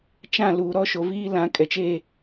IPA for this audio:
t͡ʃ ã˦˨ l uː˨ ɾ ɔ˦ ʃ o˨ v iː˦ l ã˨ kʼ ɛ˨ t͡ʃ e˦˨

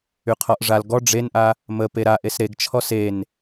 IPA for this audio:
y qʰ ɔ ʔ ʐ a l ɡ ɔ ɖ͡ʐ e n ʔ a | m ə p e ɾ a ʔ e s ɾ e ɡ t͡ʃʰ ɔ s e n

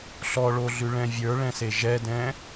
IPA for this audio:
ɬ ɔ ɭ o ɮ ʉ ɭ ɛ̃ vʲ ə˞ ɭ ɛ̃ s e ʒ ɛ d ɛ̃

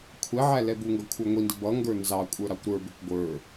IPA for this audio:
kʷʰ ɛ ʕ æ l ɛ b u ŋ ɡ ʌ kʷʰ ə˞ ŋʷ i n d ɪ b ʌ ŋ ɡ ə˞ n z ɑ kʷʼ ə˞ ɾ ɑ kʷ ɾ ə˞ b ɪ kʷ ɡʷ ə˞

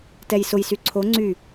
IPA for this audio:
t ɛ j s ʊ j s y ǀʰ o ŋ͡ǀ y

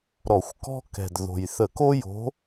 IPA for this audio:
ɾ ɔ˧˩˧ xʷ k ɔ̤˥ k ɛ̤˨˩ d ð o̤˨˩ j θ ə˧˩˧ k o˥ j o̤˧˥

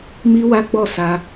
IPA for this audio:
m i˦ w a˦ ɡ͡b ɔ˦˨ s a˧

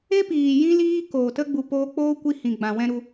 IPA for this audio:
e˦ p iː˨ j ĩ˦ l iː˦ k oː˨ t ə˦ ɡ͡b u˨ p oː˧ k͡p oː˦ kʷ i˦ h ĩ˨ ɡ͡b ã˨ w ɛ̃˦ ɾ u˧

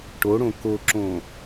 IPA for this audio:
ʈ o ɽ õ k o ǁ õ

